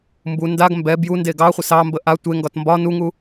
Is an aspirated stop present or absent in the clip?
absent